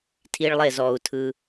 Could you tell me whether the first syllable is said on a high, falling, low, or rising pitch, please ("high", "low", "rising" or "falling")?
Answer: high